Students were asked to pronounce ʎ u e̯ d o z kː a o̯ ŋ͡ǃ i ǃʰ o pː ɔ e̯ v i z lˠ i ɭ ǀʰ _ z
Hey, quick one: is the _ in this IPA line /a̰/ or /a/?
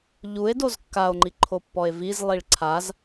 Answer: a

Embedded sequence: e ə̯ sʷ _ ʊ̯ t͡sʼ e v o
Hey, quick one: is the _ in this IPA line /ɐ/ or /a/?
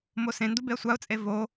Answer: a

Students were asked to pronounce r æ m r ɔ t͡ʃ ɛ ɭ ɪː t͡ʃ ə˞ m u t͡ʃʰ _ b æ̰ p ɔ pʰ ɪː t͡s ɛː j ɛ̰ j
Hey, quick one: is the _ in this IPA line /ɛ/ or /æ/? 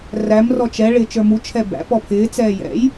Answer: ɛ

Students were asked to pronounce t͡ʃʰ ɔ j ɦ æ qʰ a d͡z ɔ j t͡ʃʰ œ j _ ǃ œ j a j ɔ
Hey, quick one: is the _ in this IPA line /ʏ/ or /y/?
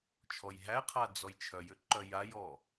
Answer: ʏ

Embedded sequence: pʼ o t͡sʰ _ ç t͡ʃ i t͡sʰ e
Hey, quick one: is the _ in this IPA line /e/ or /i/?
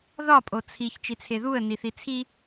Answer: i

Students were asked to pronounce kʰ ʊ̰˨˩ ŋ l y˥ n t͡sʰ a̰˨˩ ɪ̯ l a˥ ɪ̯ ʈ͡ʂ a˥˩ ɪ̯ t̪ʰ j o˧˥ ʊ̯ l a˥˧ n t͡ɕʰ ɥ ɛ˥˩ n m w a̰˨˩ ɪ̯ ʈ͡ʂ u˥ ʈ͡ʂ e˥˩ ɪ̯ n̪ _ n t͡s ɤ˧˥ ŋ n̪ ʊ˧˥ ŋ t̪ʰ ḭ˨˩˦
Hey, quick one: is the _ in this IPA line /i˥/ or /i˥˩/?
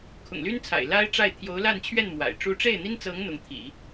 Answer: i˥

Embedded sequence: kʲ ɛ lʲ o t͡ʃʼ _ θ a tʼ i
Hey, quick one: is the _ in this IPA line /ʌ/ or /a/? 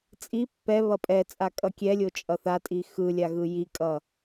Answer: ʌ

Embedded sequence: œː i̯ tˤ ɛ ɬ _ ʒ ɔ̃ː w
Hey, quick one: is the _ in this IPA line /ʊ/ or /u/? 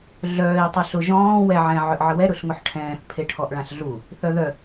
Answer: ʊ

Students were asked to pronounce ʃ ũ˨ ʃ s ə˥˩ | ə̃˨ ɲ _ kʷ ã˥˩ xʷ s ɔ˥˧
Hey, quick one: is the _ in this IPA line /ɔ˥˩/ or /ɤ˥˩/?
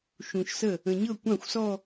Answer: ɤ˥˩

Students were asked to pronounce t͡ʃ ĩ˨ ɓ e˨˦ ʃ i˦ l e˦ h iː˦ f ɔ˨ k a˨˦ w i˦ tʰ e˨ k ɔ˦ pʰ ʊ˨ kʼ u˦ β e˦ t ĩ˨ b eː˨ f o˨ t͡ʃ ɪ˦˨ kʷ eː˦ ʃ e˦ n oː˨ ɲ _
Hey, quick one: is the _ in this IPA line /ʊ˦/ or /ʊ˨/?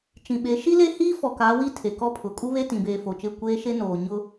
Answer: ʊ˦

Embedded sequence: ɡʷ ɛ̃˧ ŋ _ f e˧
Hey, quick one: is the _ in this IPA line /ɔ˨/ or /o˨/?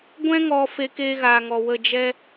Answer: ɔ˨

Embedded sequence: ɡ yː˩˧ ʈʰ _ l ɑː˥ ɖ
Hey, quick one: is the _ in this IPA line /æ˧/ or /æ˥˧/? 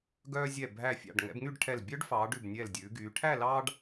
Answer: æ˥˧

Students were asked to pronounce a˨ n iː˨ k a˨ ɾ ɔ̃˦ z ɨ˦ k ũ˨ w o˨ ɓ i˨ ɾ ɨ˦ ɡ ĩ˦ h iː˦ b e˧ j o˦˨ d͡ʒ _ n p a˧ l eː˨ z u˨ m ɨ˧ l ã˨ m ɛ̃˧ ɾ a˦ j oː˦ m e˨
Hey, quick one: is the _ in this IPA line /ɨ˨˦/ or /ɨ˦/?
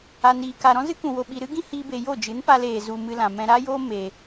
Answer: ɨ˨˦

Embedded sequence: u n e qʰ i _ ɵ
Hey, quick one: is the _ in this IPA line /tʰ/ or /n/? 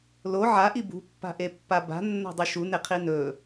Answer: n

